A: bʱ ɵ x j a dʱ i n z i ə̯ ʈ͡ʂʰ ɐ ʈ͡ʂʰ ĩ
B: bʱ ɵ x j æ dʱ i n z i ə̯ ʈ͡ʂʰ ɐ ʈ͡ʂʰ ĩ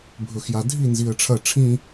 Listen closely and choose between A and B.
A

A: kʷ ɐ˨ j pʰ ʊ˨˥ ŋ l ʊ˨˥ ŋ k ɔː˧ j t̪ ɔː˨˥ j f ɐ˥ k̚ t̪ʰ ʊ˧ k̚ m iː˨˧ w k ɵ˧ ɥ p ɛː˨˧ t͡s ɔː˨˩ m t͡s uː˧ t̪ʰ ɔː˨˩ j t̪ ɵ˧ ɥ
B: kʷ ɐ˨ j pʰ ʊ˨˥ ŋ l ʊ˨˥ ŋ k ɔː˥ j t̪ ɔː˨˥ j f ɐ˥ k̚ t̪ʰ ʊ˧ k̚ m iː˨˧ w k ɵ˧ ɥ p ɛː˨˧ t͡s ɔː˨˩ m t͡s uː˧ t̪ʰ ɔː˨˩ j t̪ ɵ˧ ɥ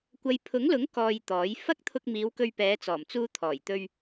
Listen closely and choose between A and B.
A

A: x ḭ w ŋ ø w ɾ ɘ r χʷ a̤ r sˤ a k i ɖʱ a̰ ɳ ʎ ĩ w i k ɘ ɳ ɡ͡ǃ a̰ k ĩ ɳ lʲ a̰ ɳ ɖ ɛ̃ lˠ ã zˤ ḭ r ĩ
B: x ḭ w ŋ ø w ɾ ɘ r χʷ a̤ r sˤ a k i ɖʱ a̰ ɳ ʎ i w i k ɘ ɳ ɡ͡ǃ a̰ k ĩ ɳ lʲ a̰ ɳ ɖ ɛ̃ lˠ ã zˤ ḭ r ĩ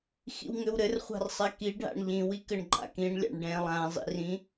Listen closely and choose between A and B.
A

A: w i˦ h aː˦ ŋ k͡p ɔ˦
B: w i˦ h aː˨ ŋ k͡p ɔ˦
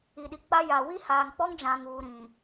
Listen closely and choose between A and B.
B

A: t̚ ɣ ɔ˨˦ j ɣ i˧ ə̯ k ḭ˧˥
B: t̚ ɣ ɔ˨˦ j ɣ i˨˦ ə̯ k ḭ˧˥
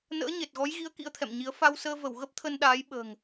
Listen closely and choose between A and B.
B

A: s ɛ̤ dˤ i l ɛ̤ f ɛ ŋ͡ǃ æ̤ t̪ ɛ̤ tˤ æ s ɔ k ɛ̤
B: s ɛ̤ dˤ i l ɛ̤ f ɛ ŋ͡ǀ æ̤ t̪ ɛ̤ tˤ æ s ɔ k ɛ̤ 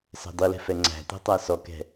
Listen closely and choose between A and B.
B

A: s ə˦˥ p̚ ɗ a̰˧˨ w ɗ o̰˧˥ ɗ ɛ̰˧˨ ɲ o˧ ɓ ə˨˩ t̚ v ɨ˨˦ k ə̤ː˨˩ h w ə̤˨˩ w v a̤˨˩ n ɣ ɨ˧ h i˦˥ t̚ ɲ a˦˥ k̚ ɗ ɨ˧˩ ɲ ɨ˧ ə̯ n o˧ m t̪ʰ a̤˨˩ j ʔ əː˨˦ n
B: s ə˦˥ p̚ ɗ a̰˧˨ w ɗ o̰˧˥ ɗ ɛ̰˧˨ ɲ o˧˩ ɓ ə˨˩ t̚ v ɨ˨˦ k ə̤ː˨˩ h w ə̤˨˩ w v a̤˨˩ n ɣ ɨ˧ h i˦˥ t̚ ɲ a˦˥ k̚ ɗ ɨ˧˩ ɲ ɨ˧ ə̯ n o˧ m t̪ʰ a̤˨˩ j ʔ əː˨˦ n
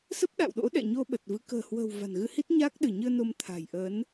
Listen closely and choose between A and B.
A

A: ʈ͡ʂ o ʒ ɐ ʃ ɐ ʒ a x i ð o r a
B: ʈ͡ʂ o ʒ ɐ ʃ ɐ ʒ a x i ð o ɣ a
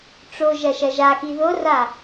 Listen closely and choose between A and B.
A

